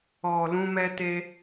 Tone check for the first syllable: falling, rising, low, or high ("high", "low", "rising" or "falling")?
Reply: low